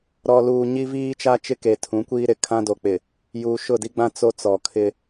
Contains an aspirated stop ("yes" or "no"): yes